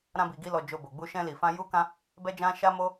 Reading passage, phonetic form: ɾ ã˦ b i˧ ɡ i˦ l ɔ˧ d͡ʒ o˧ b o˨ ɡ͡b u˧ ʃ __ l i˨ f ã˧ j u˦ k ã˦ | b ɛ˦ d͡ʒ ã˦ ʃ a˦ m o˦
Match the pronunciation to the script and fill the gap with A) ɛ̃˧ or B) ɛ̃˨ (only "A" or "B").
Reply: A